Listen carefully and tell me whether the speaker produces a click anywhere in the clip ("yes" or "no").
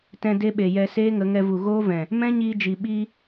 no